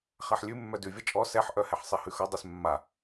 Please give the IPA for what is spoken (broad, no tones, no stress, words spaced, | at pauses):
χaħlʲʉ mːœdʉvʲʌ t͡ʃʼɔ sɛħʔœ hɛħsˤehʉxʌ dˤesmːa